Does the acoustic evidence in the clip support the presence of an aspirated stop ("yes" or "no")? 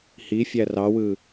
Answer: no